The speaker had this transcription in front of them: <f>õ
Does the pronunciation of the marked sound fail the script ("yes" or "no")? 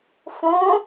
no